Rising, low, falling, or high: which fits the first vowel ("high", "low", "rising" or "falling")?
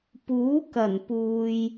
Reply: rising